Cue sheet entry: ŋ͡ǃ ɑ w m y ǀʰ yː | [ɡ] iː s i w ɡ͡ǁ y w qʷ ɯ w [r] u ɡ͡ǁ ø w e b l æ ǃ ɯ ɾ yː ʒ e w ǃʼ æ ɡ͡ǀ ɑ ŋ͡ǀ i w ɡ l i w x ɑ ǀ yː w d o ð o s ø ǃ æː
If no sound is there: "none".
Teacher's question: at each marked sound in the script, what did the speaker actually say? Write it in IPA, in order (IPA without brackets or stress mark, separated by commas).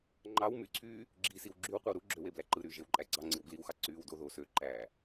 ɡ͡ǁ, ɾ